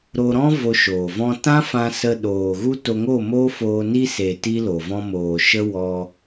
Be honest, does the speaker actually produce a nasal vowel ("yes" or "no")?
yes